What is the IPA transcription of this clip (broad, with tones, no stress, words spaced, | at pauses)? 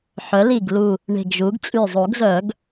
ħœ˩˥li˧˩ɡlu˧˩ | ɳe̤˧˩ɡʒu˩˥ɡ t͡sʼy˧˩zˤu˨˩˦ɡzœ˨˩˦ɡ